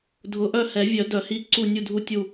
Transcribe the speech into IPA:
dʱʊ˨˩˦ʔœ˦˨hɛ˨˩˦vʲœ˨˩˦ dœ˨˩˦hi˧˥ǀu˦˨ nʲu˦˨ dʱu˦˨tʲu˦˨

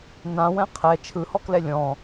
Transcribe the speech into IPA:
nãwɛ̃ qʰɛ t͡ʃʰɯhɔklɛ lʲɔ̃

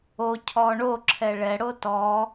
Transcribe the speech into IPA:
o cʰɔɳo ǁʰɛɭɛɽo tɔ

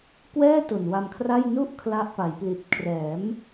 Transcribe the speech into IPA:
kwɛː˥˩ to˨˩nwa˧mkʰra˥˩j nu˥˩ʔ kʰla˦˥ʔpa˩˦jpli˨˩t̚ kʰrɛː˩˦m

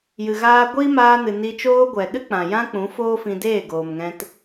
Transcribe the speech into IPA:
jɨ˨ɣaː˧ɡʷiː˦ maː˧nɨ˨ ni˧t͡ʃoː˦ ɡʷɛ˨ ɗɨ˦k͡pã˨ jã˦k͡pũ˨˦foː˦ fĩ˧deː˦˨ ɡoː˨mŋɛ̃˧t

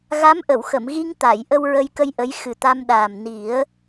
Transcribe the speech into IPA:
ɣa˧˥mʔə˨˩˨wxə˨˩˨mɣi˧ŋ t̪a˨˩˨j ʔə˧wɹə˧jkə˧j ʔə˧˥j xɨ˨˩t̪a˧mɗaː˨˩m ni˨˩˦ə̯

